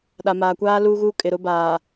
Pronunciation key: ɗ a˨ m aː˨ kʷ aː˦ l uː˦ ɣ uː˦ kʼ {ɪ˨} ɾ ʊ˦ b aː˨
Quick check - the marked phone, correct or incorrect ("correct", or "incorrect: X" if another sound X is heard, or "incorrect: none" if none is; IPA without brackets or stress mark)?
correct